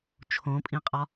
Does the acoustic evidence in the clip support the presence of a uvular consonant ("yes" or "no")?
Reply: yes